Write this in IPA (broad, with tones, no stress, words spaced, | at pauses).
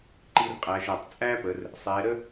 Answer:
ǃi˧rqʼæ˩˧ʒæ˩tˤ t͡sʼæ˥pə˩˧r | sˤɛ˩˧ɾə˥